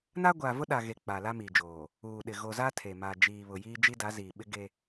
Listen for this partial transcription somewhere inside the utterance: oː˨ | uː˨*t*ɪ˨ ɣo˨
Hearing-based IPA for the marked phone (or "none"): ɗ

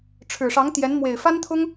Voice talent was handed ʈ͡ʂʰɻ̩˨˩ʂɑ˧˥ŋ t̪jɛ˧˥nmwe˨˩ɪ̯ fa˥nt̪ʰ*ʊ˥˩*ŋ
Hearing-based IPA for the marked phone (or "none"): ʊ˥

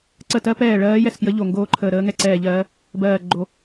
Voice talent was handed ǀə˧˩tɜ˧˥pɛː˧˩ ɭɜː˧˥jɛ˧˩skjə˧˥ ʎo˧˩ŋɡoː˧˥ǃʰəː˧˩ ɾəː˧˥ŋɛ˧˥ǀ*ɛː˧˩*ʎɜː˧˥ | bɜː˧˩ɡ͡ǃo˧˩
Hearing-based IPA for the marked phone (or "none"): ɛː˧˩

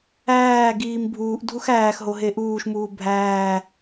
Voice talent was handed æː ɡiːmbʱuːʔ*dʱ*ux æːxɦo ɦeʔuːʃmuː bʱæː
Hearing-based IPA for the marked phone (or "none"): dʱ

